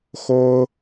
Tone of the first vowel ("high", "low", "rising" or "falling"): high